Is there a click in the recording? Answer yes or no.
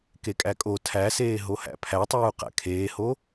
no